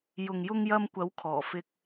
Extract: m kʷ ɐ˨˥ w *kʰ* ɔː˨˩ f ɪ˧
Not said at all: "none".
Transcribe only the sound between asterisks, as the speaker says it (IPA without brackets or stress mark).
kʰ